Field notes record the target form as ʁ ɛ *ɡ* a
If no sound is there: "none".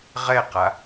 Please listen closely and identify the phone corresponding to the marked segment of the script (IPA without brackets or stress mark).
q